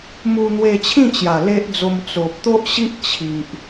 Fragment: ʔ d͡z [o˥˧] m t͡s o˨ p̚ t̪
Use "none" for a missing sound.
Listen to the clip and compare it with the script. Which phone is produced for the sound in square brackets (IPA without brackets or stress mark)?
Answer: o˧